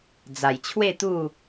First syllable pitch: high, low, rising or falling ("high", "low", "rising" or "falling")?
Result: low